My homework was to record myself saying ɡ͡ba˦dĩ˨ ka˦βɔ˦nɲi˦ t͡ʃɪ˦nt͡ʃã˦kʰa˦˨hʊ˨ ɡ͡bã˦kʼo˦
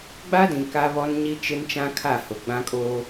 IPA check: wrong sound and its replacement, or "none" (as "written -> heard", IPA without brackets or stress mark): none